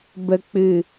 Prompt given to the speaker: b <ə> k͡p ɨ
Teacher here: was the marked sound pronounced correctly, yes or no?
yes